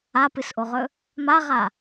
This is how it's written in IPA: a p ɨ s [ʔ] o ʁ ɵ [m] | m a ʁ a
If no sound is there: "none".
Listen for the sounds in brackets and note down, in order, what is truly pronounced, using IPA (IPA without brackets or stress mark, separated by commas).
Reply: ʔ, none